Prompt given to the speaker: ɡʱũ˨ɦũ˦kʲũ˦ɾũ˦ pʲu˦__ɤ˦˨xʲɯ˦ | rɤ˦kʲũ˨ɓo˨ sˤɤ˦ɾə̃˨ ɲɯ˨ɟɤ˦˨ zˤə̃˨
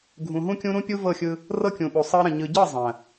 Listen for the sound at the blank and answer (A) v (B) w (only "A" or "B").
A